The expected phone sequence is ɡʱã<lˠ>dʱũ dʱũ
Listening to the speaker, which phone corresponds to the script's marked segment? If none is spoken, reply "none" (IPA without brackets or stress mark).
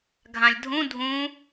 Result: lʲ